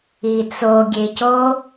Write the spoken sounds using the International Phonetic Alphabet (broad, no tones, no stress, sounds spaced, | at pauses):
i t͡s o ɡʲ e c o